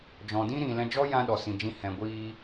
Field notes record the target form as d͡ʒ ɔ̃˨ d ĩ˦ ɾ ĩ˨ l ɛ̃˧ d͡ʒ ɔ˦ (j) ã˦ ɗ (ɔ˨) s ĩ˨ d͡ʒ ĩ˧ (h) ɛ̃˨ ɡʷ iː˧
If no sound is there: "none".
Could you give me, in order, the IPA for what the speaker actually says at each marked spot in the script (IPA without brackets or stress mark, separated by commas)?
j, ɔ˨, h